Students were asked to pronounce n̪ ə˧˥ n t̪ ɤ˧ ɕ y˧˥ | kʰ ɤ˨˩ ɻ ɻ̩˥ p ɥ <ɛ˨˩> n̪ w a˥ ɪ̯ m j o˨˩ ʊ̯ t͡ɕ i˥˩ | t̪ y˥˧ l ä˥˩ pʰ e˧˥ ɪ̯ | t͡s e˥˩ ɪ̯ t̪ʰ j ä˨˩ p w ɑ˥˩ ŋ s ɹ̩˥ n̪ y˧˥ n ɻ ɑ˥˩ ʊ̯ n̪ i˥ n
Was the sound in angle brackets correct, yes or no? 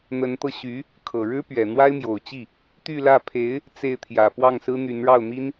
yes